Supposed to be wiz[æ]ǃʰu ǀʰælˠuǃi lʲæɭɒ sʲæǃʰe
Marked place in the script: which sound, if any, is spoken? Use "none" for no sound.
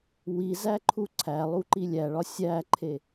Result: æ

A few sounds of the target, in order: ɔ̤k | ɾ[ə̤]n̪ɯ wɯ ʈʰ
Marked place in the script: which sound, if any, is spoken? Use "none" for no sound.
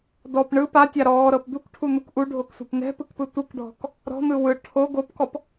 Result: ɔ̤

